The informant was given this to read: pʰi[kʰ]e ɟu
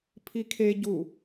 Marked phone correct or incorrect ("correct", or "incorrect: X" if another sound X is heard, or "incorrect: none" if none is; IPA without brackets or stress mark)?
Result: correct